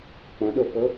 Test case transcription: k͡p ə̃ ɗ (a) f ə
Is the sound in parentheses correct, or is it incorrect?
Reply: incorrect